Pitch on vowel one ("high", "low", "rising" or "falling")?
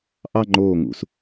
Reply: falling